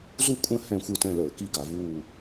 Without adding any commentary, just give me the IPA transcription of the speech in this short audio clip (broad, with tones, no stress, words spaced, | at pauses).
zu˦˨kʷʼə̃˦˨ hɛ̃˦˨xʷɯ˦˨tɛ̃˦˨ləː˧˩˧ ki˦˨ɡa˧˩˧vuː˦˨